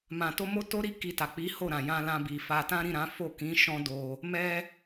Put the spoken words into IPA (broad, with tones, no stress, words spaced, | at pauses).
mã˨to˧ mo˦to˦ɾi˦ ki˧ta˨ k͡pi˨˦ ho˦˨ ɾã˨jã˧lã˧bi˨ fa˧ tã˦ɾĩ˦˨ɾã˨˦ fo˦˨ kĩ˨˦ ʃɔ̃˦do˧ | mɛ˦